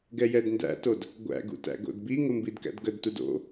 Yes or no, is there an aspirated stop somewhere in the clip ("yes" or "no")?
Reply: no